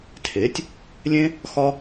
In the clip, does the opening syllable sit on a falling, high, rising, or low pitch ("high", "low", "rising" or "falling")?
rising